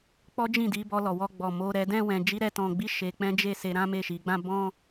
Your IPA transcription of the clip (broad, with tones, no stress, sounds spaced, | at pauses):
k͡p ɔ˦ d͡ʒ ĩ˦˨ d i˨˦ b ɔ˧ l ɔ˨ w ɔ˧ ɡ͡b ɔ˨ m o˧ ɾ ɛ˧ d ɛ̃˦ w ɛ̃˧ d͡ʒ i˦ ɾ ɛ˦ t ɔ̃˧ ɡ͡b i˦ ʃ e˧ k͡p ɛ̃˦ d͡ʒ e˦˨ s e˧ ɾ ã˦ m e˦˨ ʃ i˨˦ ɡ͡b ã˦ b ɔ̃˦